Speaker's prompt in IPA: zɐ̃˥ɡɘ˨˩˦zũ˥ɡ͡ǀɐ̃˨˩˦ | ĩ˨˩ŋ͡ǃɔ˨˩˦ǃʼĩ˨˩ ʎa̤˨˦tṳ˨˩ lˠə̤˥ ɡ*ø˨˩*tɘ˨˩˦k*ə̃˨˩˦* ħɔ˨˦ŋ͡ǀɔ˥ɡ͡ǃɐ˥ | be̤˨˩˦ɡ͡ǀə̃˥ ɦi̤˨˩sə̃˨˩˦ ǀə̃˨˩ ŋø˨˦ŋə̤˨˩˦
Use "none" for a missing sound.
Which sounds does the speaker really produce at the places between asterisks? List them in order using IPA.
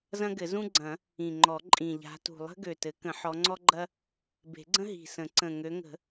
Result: ø˨˩, ə̃˨˩˦

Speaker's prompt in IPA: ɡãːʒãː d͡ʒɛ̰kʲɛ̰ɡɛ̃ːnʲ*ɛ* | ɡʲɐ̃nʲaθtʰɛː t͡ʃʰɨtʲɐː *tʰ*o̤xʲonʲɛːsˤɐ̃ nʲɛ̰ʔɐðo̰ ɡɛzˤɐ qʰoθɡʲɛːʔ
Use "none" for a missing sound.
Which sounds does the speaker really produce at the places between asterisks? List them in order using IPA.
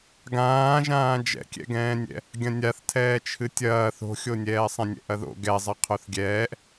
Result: ɛ̰, θ

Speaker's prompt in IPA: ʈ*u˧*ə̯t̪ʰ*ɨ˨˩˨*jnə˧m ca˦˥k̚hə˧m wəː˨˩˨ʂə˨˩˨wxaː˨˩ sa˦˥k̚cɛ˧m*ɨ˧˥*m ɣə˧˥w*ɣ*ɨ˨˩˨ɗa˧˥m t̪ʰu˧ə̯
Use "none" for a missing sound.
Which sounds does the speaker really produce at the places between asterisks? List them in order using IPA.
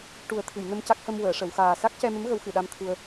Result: u˨˩˦, ɨ˨˩˨, ə˧˥, x

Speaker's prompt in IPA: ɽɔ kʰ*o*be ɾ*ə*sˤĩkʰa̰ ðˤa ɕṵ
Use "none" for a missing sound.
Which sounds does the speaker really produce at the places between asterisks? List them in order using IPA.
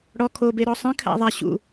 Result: o, ɔ

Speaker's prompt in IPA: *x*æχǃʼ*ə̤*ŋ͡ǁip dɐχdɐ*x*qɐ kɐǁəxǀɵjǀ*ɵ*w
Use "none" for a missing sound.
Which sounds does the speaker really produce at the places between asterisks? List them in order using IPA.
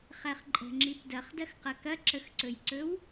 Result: χ, ə̤, x, ɵ

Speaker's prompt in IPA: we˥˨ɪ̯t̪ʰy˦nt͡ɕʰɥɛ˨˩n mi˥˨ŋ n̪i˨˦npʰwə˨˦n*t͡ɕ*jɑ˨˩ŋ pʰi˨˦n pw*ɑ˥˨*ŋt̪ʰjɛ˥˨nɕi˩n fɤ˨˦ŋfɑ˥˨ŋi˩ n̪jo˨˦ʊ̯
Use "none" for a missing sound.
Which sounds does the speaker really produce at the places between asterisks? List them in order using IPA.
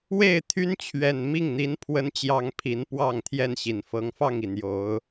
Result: t͡ɕ, ɑ˥˨

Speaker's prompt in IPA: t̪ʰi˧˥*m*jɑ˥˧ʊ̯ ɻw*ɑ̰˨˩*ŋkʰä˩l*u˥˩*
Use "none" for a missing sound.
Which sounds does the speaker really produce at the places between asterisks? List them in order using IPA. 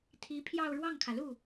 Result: pʰ, ɑ˥˩, u˥˩

